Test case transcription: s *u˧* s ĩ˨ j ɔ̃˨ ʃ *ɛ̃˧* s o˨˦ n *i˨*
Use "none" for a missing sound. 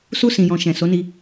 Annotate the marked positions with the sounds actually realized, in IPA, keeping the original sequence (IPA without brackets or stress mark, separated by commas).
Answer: u˧, ɛ̃˨, i˧